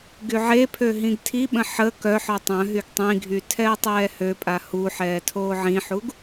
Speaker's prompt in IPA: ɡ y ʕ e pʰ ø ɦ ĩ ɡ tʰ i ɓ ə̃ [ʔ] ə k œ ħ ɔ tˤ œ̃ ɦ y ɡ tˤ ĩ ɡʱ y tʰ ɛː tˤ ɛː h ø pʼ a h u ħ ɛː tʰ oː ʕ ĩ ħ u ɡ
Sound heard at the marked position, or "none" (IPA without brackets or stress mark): ħ